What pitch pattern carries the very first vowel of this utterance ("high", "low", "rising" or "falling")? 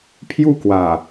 falling